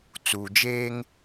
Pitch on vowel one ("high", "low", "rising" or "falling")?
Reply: low